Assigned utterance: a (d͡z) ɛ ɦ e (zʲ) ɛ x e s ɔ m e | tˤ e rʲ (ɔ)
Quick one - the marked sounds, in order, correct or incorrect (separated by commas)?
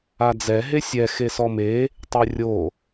correct, incorrect, incorrect